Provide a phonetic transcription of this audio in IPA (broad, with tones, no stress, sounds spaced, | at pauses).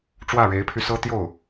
ʈ͡ʂ w ä˥˩ ɻ e˧˥ ɪ̯ pʰ y˧ s ɤ˥ t̪ j o˥˩ ʊ̯